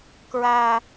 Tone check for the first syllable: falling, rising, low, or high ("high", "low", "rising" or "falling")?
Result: high